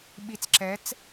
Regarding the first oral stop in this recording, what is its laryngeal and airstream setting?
implosive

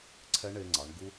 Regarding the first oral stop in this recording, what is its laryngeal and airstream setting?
click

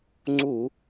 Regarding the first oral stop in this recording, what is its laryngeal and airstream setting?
click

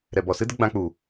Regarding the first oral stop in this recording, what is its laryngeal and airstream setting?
plain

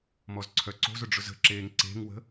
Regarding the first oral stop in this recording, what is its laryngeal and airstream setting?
click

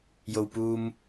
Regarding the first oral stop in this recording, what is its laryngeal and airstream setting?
plain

